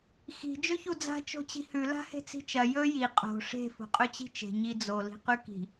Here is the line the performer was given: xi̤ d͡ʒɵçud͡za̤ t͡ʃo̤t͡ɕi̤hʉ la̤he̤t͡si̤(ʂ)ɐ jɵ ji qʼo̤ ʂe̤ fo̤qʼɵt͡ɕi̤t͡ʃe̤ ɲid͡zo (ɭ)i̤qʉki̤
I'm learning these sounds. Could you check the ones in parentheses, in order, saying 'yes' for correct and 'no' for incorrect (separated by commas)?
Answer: no, no